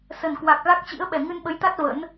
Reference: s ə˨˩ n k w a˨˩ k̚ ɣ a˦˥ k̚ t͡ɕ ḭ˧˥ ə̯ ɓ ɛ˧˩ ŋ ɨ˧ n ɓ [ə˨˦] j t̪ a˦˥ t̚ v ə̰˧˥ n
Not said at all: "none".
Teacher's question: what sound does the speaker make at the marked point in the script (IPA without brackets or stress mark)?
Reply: ə˨˦